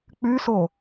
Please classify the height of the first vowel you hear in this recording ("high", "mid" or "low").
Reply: high